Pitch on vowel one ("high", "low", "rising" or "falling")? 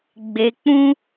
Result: low